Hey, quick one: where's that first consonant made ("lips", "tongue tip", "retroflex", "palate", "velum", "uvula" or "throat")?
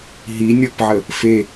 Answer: throat